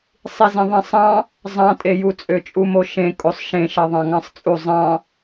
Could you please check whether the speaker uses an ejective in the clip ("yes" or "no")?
yes